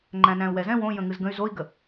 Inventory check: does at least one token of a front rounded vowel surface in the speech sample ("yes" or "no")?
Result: yes